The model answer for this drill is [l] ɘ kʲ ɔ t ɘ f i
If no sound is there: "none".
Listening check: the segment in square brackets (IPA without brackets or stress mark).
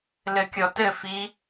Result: l